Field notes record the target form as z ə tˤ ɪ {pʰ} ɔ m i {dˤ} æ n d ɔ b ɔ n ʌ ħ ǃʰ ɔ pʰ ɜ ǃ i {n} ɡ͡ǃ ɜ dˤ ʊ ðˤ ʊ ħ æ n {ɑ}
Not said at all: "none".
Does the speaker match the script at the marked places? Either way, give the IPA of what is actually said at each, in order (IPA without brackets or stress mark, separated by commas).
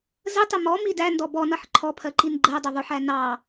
m, d, n, ɑ